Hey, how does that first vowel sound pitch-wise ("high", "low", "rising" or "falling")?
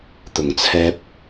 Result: low